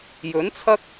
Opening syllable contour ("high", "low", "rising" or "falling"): rising